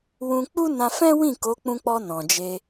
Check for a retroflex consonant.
absent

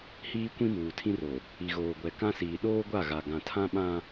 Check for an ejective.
absent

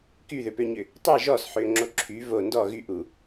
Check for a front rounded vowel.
present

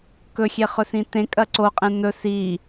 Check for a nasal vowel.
present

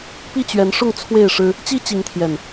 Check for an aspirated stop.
present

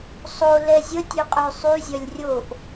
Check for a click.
absent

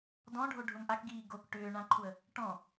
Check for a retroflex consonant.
present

